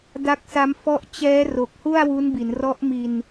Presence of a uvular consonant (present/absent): absent